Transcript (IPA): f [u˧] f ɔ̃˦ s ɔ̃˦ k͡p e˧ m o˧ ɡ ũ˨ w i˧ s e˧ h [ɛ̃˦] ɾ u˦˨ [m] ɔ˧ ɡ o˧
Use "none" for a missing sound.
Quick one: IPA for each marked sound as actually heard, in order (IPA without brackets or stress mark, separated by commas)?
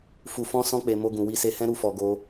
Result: u˧, ɛ̃˦, f